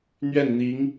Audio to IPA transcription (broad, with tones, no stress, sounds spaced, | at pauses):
n̪ ɥ ɛ˥˩ n n̪ i˧˥ ŋ